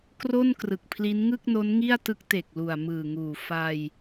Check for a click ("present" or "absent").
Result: absent